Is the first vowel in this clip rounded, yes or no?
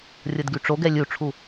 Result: no